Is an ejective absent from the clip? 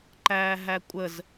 no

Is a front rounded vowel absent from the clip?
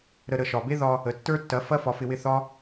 yes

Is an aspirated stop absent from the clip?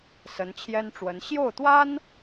no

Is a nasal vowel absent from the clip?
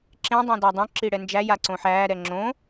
no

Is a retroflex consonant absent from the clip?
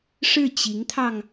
no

